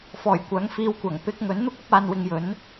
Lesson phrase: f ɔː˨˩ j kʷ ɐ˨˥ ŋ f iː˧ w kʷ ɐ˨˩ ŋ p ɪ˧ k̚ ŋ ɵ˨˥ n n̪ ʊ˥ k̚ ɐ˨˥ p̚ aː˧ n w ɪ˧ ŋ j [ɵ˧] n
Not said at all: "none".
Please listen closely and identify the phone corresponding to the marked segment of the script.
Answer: ɵ˨˥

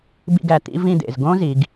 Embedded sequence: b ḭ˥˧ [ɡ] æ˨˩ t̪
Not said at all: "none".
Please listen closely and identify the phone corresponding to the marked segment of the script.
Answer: ɡ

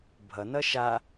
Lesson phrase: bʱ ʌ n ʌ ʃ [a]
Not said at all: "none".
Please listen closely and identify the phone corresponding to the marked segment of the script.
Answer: a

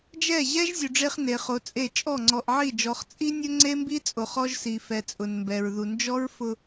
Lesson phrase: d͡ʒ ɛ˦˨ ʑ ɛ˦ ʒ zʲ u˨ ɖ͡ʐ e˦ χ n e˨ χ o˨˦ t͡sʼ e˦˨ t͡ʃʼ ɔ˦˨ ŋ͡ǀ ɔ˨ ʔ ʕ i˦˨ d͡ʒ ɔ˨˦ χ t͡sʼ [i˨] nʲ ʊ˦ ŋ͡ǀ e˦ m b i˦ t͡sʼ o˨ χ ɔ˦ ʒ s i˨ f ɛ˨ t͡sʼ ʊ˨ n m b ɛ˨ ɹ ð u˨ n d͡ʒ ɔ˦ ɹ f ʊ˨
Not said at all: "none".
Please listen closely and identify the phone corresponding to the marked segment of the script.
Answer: i˦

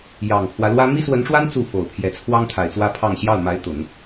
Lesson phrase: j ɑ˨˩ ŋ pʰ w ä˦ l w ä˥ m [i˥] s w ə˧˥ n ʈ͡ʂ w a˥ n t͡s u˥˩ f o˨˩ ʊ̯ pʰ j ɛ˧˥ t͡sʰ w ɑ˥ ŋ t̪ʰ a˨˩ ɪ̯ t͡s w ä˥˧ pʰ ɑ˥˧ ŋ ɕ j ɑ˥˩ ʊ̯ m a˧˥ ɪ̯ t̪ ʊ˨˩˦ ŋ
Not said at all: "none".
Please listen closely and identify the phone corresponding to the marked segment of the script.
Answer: i˥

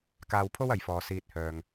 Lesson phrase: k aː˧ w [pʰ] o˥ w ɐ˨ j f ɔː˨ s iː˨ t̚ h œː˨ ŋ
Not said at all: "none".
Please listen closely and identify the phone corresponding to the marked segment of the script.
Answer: pʰ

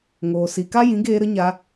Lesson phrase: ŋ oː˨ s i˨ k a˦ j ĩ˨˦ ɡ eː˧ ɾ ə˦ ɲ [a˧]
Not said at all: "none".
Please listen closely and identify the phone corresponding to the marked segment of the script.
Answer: a˧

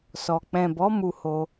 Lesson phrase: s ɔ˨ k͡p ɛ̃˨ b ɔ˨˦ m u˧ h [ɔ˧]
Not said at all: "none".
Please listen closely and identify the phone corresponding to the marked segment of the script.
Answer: o˧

